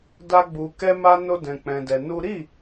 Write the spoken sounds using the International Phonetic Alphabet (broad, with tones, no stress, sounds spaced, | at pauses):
d a˦ ɡ͡b u˧ k ɛ˦ m a˦ n o˦ d ɛ̃˧ k͡p ɛ̃˧ d ɛ˧ n u˦ ɾ i˦˨